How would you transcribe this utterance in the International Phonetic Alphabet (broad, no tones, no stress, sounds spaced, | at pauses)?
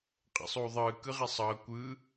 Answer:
qʼ ɛ̰ sˤ uː ðˤ ɯː k ɯ ʁ i sˤ ʌː kʷ ɯ